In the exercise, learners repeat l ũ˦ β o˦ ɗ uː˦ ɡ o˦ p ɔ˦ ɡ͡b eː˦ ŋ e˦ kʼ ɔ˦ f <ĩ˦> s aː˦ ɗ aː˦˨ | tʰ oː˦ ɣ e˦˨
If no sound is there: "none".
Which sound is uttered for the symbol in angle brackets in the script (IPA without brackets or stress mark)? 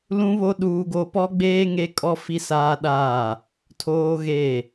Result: i˦